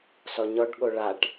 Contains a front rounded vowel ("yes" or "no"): no